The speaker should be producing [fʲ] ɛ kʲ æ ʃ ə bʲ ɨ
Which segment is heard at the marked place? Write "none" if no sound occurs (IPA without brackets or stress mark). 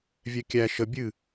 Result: vʲ